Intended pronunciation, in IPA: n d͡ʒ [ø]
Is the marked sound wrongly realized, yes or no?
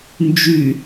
yes